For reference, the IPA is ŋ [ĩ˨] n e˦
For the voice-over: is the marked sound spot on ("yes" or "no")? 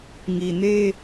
no